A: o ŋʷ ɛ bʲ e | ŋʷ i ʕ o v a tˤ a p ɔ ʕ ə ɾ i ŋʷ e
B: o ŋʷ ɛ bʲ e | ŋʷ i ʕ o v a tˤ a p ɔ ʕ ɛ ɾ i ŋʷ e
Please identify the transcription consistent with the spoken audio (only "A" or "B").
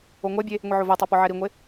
B